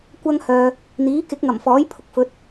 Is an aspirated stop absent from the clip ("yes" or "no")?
no